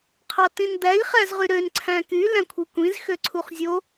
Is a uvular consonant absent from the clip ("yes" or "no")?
no